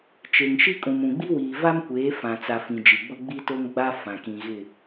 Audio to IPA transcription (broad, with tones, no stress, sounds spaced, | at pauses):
t͡ʃ e˨ ŋ ʃ i˦ kʼ ũ˨ m ũ˨ ɡ͡b i˦ w iː˨ v a˦ m kʷ eː˨˦ f ã˨ t͡s a˨ f ĩ˨ d͡ʒ i˨ ɡ͡b ʊ˦ ɡ͡b i˦ t o˦ ŋ ɡ͡b a˦ f ã˨ k ĩ˨ ɣ ɪ˦˨